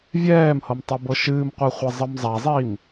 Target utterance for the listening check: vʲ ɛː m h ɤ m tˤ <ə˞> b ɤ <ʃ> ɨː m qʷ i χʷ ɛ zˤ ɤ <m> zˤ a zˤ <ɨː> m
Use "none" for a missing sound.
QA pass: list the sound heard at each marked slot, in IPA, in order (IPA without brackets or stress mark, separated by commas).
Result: ɤ, ʃ, m, iː